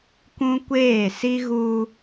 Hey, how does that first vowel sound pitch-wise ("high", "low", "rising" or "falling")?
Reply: high